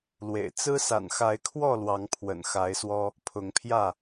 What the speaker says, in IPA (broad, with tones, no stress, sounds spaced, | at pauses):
l w ḛ˨˩ ɪ̯ t͡s ɹ̩˦ s a̰˨˩ n x a˨˦ ɪ̯ kʰ w ɔ˥˨ l w ɑ˨˦ ŋ pʰ w ə̰˨˩ n x a˨˦ ɪ̯ s w ɔ˦ | pʰ ʊ˨˦ ŋ pʰ j ä˥˨